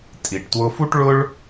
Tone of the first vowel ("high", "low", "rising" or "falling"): low